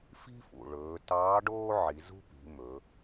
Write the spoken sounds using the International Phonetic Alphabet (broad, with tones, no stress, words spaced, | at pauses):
fi̤˥fṵ˩ ɭɵː˩˧tɑː˧˥ɖoː˥ʕi˩˧ zṳ˥pi̤˩˧mɵ˩˧